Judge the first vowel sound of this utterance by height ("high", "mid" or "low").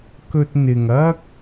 mid